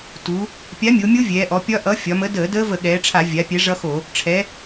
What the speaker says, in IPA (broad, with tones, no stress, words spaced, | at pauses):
tu˩˧ | pʲa˨˥mʲo˩˧mʲo˦˥ vʲɛː˩˧ʔɔ˩˧pʲɒ˦˥ ʔʌ˨˥ fʲɒ˩˧mə˨˥ dəː˧˩˧dəː˦˥və˧˩˧ ɠɛː˩˧ʈ͡ʂʰa˧˩˧ vʲa˩˧ pʲɛ˨˥ʐʌ˦˥xo˧˩˧ | ʈ͡ʂʰɛ˩˧